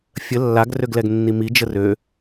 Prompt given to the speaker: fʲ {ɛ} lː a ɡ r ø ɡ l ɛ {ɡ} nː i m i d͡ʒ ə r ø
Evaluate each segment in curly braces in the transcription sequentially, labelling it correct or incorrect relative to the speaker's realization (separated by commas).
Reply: incorrect, correct